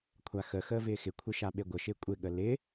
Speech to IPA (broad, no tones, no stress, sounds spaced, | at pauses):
kʷʰ a x ə x əː v ɪː x ɪ kʷʰ ɪ ʃ a ɓ e ɡʷ ə ʃ ɪː kʷʼ ɪ ɠ ə l ɪ